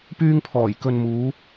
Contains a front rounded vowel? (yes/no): yes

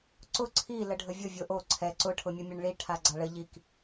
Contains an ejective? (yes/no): no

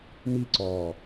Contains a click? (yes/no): yes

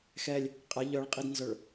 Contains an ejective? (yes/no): yes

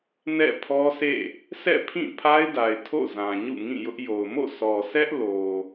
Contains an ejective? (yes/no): no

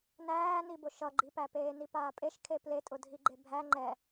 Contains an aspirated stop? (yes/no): yes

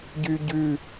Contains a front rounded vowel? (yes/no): yes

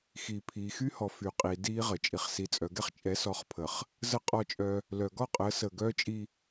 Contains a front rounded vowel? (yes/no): yes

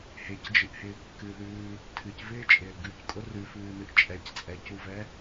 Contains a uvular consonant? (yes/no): no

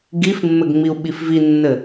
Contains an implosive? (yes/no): yes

